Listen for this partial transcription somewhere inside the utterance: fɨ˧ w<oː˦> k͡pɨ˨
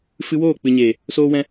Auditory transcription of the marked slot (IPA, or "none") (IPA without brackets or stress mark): oː˦˨